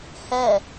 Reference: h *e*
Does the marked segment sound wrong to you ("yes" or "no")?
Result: yes